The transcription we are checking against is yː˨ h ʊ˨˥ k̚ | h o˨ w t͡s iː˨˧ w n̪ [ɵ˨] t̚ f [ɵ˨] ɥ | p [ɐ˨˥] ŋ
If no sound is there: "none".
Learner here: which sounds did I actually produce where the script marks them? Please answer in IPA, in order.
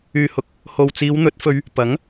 ɵ˨˥, ɵ˧, ɐ˨˥

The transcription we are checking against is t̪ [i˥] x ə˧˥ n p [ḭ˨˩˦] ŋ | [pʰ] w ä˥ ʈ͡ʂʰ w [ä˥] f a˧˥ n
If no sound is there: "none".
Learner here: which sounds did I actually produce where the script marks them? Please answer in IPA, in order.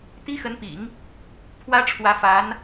i˥, ḭ˨˩˦, pʰ, ä˧˥

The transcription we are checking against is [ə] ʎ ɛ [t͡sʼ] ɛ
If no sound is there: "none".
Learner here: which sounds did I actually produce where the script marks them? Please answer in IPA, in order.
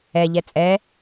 ɛ, t͡sʼ

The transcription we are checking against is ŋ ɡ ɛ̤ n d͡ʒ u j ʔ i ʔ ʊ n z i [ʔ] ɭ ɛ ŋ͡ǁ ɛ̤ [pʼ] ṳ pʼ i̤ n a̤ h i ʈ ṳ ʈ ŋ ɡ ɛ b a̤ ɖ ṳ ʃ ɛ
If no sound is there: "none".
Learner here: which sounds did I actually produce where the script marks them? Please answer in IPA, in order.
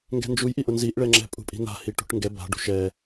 ʔ, pʼ

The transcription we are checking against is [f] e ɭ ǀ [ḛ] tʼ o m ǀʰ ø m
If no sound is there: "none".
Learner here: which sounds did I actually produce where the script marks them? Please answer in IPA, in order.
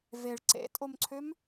v, ḛ

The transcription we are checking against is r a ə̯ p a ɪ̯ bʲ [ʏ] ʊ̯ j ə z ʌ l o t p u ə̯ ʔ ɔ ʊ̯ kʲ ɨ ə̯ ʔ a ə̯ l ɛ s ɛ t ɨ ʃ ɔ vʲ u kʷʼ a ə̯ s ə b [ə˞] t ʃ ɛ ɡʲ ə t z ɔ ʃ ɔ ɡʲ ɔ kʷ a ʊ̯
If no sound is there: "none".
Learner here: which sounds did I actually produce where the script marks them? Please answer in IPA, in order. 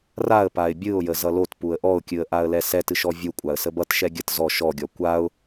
ɨ, ʌ

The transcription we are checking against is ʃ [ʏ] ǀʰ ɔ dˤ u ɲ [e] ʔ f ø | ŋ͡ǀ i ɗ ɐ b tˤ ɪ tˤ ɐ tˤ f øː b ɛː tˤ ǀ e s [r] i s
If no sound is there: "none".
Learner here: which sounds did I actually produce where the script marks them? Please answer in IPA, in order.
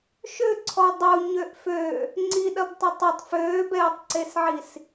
ʏ, ø, ʕ

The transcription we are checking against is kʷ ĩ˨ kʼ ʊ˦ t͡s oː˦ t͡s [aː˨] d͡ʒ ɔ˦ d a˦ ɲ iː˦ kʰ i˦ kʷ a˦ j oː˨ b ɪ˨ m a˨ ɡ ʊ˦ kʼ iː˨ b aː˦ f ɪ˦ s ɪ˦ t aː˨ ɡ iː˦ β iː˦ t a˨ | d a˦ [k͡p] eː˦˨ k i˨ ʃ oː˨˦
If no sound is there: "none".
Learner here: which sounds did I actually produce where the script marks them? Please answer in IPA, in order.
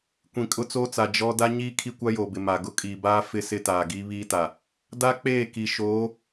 a˨, k͡p

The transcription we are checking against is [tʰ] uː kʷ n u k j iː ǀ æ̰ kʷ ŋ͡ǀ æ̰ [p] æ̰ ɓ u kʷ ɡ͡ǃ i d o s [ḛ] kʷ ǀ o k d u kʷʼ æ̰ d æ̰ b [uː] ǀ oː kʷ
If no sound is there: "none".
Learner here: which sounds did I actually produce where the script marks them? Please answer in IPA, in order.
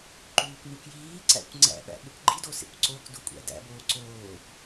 ǃ, ɓ, ḛ, oː

